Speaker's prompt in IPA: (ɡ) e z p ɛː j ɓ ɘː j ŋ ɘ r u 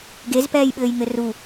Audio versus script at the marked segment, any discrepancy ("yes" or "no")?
no